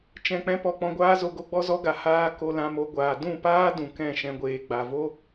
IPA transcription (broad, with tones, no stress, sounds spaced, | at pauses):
t͡ʃ ɛ̃˨ k͡p ɛ̃˧ p ɔ˨ k͡p ɔ̃˨ ɡʷ aː˧ z o˨ ɡ o˧ ɡ͡b ɔ˦ z ɔ˦ ɡ a˧ h aː˧ k o˧ l ã˧ m o˧ ɡʷ aː˨ d ũ˦˨ p aː˦ d ũ˨ k ɛ̃˦˨ ʃ ɛ̃˧ ɡʷ eː˨ ɡ͡b a˨ v o˦